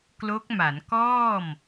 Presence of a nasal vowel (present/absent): absent